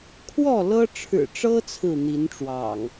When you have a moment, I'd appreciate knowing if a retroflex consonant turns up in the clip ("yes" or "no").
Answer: yes